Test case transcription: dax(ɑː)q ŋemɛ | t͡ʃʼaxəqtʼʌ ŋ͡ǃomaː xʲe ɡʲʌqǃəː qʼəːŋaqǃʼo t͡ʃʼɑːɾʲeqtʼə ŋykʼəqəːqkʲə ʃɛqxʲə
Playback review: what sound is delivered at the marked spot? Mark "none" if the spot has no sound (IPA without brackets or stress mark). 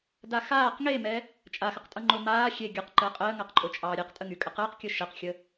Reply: aː